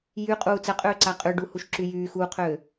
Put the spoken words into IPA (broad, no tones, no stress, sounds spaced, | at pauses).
j y qʼ uː t͡s ɜ qʼ øː ǀ a qʼ ʏ ɖ u h u ʃ ǁ y j yː x uː qʰ øː